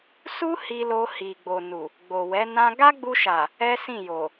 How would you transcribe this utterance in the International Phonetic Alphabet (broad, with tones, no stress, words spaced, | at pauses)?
su˦ hi˧lo˧ hi˨ɡ͡bo˨nu˨ | ɡ͡bo˨wɛ˨˦ nã˦ ɡa˦ɡ͡bu˧ʃa˨ | ɛ˦sĩ˦˨jo˨